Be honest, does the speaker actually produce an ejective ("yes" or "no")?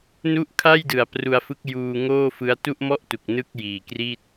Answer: no